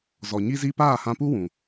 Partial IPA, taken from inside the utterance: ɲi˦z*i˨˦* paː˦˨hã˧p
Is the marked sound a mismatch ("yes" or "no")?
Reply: yes